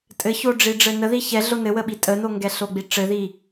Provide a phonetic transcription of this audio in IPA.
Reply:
tʼ ɘ ç o ɖ͡ʐ i ɖ͡ʐ ɘ n ə ð i ç ɛ ɮ o n ɘ w ə ɓ i tʼ ə n o ŋ ɡ ɛ ɬ o ɡ͡b i ʈ͡ʂ ɘ ð i

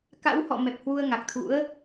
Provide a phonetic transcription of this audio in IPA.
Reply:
k a̰˧˥ w h ɔ̰˧˨ m ɛ˨˩ p̚ h w u˧ ə̯ ŋ a˨˩ k̚ t̪ʰ ṵ˧˥ ə̯

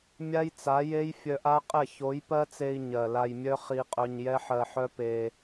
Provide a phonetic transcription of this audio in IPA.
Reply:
mʲ a˦ j t͡s a˨˦ j e˦ j fʲ œ˧ ʔ a˦ qʼ ɛ˦˨ ç o˨˦ j p ɜ˦ t͡s e˧ i̯ ɲ ɜ˨ l a˧ j mʲ œ˦ χ i˧ qʼ œ˧ ɲ j ɛ˦ ħ ɜ˧ ħ œ˦ p e˧

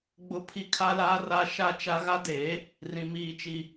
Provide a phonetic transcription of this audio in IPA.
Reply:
ɡ͡b ʊ˦ pʰ i˦ kʰ a˦ l aː˦ r a˦ ʃ a˦ t͡ʃ a˦ ɣ a˦ d eː˨˦ | r ĩ˨ m iː˨ t͡ʃ i˨

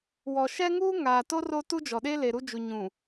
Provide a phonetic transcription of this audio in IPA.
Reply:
w ɔ˨ ʃ ɛ˦ ŋ uː˦ ŋ aː˨ t o˦ r o˦ t u˦ d͡ʒ ɔ˨ ɗ e˦ l e˨ ɾ u˦ d͡ʒ u˨ ɲ ũ˨

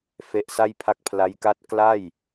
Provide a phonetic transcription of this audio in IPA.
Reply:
f e˦˥ ʔ s a˥˩ j pʰ a˦˥ k̚ pʰ l a˦˥ j k a˥˩ t̚ k l a˥˩ j

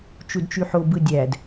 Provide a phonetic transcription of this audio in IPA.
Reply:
t͡ʃ u d t͡ʃ y ħ o b ɯ dʲ æ d

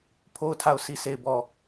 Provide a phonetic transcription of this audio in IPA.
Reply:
pʰ o˦˨ ʊ̯ tʰ a˦˨ ʊ̯ sʰ i˦˨ s e˦˨ ɪ̯ b ɔ˦˨

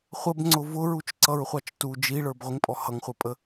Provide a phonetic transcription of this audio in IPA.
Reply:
χʷ ə b ŋ͡ǀ ʊ v ʊ ɹ u t͡ʃ ǀ ʌ ɹ χʷ ɑ t͡ʃ t u d͡ʒ i ɭ ə˞ b ʁʷ ɪ ŋ pʼ ɔ h ʌ ŋ χʷ ə˞ pʼ ə

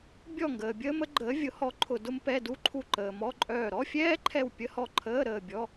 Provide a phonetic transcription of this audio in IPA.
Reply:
bʲ ɔ˦˨ ŋ ɡ əː˨ bʲ əː˥ m ə˥ ɡ͡ǃ əː˨˦ vʲ ʊ˨˦ h ɔ˨˦ ǃʰ ʊ˦˨ d ʊ˥ m p ɛ˧˥˧ d u˧˥˧ ǃʰ u˦˨ ǃ əː˨ m ɔ˧˥˧ ǃʼ œː˦˨ ɾ ɔ˧˥˧ fʲ ɛː˥ ǃʰ ɛ˦˨ w pʲ ə˧˥˧ h ɔ˦˨ ǃʰ əː˧˥˧ ɾ əː˦˨ bʲ ɔ˧˥˧

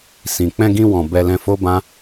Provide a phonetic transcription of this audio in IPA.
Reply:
s ĩ˨ k͡p ɛ̃˧ ɡ ĩ˧ w ɔ̃˨ b ɛ˧ l ɛ̃˧ f o˦ b ã˦

